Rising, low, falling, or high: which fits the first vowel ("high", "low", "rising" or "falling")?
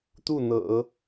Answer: falling